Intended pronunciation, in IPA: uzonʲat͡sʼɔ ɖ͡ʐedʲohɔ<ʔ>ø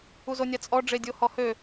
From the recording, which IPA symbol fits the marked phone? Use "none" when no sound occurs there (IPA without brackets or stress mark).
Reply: h